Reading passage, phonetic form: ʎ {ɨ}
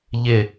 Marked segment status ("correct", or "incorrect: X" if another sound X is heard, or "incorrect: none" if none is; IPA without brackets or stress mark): incorrect: ɪ